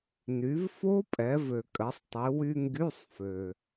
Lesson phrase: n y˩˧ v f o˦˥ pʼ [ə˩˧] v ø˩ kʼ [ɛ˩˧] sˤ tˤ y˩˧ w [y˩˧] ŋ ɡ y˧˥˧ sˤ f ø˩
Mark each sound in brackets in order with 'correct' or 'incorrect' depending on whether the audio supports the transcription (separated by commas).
incorrect, incorrect, incorrect